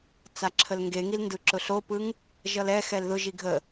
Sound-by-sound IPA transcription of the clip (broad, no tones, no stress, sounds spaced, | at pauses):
t͡s a ǁʰ ə l ŋ ɡ e ŋ i l n d ɯ ǁ ʊ ɬ o p ɯ ŋ | ʒ ʌ l ɛ x ɛ l ð ʊ ʒ i ɡʱ ə